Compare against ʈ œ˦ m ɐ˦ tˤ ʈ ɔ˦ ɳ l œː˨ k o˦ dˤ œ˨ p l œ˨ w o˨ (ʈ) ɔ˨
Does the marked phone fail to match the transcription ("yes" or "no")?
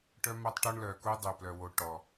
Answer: no